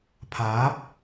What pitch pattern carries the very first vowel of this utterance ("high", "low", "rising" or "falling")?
rising